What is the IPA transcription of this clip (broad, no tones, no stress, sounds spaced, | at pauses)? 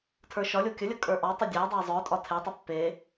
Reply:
tʰ ə˞ ʃ ɒ lʲ o kʲ ə lʲ ə kʼ ə˞ ʔ ɒ tˤ ə dʲ æ dˤ æ zˤ œ tʼ ɒ tʰ e tˤ ə pː e